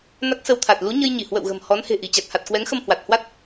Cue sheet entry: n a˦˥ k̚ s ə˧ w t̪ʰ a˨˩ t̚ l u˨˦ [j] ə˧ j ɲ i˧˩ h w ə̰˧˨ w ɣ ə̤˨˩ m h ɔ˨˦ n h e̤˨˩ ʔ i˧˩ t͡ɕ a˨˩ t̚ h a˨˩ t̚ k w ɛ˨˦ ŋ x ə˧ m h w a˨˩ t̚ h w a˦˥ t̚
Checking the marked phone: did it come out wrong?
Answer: yes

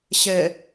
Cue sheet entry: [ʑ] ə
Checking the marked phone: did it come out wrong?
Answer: yes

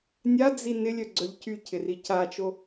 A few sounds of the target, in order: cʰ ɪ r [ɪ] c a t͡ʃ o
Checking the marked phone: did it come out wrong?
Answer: yes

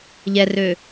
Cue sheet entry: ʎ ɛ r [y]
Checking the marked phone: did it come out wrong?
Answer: yes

